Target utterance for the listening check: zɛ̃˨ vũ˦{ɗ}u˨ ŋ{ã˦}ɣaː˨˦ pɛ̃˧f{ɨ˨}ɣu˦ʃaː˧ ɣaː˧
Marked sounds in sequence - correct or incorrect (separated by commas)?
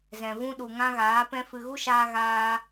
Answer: correct, correct, correct